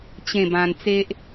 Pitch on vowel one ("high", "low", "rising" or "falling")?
falling